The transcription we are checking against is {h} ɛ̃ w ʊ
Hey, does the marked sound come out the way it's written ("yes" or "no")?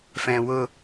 no